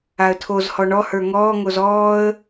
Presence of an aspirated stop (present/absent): present